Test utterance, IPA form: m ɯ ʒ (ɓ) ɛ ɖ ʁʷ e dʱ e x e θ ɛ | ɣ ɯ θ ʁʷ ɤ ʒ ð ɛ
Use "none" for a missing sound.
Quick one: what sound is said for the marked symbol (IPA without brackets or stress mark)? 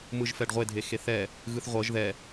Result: f